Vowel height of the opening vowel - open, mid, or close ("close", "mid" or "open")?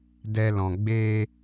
mid